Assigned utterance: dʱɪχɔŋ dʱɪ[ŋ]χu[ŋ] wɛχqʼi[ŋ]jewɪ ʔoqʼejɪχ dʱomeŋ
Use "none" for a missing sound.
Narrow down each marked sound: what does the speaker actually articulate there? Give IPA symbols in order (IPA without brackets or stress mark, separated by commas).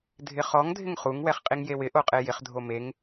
ŋ, ŋ, ŋ